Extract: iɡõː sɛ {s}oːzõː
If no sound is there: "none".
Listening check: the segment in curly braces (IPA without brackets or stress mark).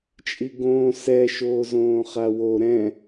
ʃ